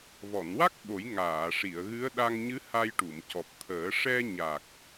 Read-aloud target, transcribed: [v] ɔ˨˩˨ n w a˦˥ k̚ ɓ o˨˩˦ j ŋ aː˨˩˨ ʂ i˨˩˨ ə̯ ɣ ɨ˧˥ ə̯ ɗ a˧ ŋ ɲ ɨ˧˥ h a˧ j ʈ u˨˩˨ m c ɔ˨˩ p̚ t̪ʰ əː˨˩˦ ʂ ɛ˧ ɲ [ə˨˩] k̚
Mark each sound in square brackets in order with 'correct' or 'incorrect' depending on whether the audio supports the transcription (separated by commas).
correct, incorrect